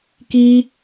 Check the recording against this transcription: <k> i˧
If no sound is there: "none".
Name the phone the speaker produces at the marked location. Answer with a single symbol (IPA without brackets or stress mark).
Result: k